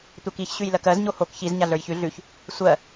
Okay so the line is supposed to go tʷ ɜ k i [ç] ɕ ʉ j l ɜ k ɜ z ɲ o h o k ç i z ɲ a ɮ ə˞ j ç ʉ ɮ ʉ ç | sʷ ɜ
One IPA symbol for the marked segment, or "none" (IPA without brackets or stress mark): ç